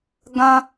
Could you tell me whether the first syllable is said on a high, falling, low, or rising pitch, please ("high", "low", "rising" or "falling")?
high